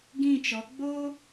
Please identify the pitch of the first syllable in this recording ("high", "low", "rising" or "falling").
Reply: falling